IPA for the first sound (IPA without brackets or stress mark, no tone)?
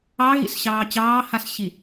ɑ